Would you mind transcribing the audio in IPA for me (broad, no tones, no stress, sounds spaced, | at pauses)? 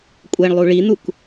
kʷʼ ɛ ɳ lˠ u ɭ i n̪ u k